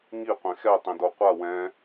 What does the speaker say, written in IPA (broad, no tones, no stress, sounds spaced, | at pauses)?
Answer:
ŋ i qʷ ẽ x ɛ tˤ ẽ d o qʷ a w ɛ̃